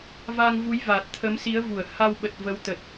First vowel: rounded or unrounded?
unrounded